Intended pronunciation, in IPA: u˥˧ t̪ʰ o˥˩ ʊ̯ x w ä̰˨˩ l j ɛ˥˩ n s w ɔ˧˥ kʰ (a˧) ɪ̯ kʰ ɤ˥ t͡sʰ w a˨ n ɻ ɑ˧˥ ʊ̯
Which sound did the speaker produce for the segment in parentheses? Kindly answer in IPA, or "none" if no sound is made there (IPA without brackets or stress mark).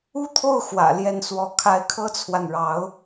a˧˥